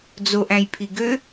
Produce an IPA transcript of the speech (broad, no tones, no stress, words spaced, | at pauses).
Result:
d͡zoʔæ̃jpʰi ɡø